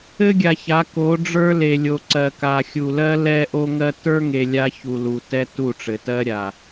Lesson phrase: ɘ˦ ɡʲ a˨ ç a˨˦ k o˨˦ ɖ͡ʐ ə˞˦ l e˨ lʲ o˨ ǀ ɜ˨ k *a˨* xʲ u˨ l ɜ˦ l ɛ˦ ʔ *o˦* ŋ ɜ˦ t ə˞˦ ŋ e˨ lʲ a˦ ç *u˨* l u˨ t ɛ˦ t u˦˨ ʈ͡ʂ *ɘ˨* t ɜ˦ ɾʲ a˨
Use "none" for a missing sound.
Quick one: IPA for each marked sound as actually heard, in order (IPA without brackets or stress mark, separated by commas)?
a˨, o˦, u˨, ɘ˨